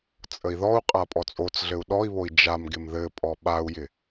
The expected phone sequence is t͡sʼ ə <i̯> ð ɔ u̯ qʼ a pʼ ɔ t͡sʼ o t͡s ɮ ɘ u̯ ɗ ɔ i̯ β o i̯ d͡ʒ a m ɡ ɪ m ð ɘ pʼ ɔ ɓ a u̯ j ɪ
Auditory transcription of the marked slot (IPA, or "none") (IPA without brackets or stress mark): i̯